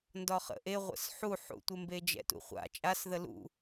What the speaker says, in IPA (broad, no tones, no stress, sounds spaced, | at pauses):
n d ɒ χ ə̰ ʔ e ʁʷ ə̰ s ħ u ħ ṵ tʷ e m b e d͡ʒ ɛ̰ t ṵ χʷ a̰ t͡ʃʼ a s ð ə l ṵ